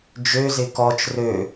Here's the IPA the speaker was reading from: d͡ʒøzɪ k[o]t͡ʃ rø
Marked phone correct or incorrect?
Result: incorrect: ɔ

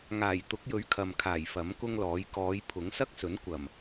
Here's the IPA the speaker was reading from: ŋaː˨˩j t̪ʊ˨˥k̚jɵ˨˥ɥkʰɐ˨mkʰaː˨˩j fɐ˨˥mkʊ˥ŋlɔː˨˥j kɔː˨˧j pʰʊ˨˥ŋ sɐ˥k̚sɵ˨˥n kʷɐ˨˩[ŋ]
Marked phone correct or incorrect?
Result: incorrect: m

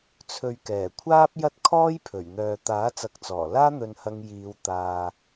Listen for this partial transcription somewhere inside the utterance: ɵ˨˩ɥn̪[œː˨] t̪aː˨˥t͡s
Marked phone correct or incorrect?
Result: correct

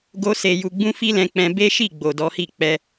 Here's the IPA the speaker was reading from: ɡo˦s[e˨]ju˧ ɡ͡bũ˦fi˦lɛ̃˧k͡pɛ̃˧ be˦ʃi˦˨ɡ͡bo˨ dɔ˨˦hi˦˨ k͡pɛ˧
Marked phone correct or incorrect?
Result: incorrect: e˧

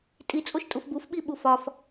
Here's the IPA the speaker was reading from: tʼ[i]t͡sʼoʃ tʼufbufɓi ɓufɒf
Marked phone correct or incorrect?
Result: correct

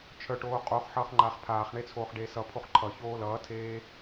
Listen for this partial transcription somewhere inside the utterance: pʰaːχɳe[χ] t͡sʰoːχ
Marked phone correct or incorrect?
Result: incorrect: none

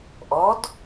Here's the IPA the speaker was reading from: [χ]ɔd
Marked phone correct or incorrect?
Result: incorrect: ʔ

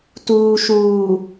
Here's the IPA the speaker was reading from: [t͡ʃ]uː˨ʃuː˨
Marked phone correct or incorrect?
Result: incorrect: t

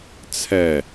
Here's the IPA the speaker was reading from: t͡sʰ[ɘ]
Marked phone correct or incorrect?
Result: incorrect: ɛ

